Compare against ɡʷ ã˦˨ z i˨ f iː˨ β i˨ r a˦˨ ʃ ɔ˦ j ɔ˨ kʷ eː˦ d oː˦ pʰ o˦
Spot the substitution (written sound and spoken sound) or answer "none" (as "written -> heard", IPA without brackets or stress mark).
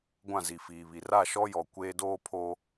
none